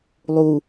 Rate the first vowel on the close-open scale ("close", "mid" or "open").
close